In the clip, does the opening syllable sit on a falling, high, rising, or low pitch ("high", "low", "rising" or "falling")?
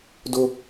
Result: high